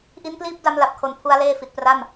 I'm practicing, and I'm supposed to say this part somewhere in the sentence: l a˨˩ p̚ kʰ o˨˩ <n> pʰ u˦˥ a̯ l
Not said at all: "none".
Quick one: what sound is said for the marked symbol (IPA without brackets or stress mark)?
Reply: n